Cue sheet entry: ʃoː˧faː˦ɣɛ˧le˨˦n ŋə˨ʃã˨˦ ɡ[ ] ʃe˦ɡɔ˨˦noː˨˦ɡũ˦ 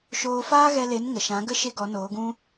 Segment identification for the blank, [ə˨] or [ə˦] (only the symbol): ə˦